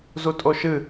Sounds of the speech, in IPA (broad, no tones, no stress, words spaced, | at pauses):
zutʼoʃɨ